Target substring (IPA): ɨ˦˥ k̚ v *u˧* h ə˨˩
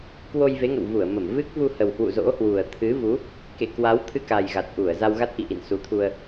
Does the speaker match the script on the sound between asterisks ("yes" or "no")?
yes